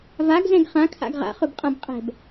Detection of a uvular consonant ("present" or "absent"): present